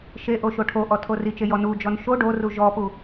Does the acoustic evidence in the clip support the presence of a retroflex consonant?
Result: yes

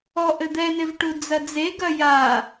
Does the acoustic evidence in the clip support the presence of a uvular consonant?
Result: no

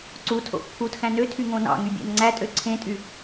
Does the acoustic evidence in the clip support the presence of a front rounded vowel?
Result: yes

